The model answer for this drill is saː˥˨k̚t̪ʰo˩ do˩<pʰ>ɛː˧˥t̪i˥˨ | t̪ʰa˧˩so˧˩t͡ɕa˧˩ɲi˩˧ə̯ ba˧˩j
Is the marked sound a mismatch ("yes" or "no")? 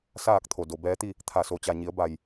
yes